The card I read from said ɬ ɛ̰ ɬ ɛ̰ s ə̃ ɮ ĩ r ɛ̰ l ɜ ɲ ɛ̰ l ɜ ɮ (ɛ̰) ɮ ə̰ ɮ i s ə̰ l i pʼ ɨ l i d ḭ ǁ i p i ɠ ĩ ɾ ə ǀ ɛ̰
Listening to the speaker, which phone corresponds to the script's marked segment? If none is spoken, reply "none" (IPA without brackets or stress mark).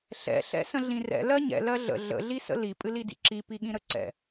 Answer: ə̰